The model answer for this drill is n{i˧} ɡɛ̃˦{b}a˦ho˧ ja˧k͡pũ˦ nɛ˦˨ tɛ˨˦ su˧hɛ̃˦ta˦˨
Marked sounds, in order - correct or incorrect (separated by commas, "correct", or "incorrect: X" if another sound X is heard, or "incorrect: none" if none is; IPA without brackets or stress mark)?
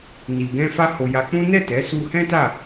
correct, incorrect: f